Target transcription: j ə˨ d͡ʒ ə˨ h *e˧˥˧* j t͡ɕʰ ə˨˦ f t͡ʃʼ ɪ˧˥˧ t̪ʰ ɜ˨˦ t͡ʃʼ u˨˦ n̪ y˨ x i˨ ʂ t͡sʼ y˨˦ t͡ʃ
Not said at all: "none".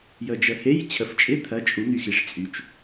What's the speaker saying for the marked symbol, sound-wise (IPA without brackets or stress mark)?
e˧˥˧